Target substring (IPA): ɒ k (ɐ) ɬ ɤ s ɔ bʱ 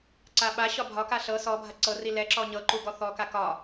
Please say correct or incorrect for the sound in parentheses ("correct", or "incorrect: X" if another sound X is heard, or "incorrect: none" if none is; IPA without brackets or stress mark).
incorrect: a